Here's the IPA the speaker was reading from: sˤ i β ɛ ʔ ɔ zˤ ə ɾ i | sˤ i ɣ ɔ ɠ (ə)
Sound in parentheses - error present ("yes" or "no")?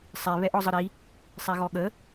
no